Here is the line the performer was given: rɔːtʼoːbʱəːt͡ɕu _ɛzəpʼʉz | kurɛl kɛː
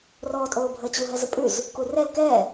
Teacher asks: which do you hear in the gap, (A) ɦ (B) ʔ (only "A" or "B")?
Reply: A